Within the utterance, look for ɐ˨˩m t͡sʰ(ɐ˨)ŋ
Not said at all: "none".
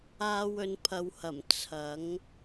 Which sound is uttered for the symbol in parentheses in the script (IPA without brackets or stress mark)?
ɐ˨˥